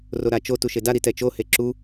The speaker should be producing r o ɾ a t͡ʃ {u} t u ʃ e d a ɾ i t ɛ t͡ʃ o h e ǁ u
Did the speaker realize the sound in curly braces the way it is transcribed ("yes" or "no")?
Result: no